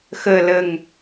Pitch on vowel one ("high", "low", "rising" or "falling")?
low